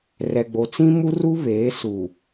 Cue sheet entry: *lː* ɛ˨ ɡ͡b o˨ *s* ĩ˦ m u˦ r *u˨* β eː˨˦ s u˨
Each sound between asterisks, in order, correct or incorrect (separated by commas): incorrect, incorrect, incorrect